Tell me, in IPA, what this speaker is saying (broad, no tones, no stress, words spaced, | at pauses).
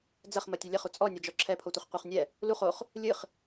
d͡zɐχmɐtʲɘ lʲɐχu t͡sʼɔnʲɐd͡ʒɔ ǁʰɛpʰotʷɘχ qʷeχnʲɛ | luχ oχ | lʲɨχ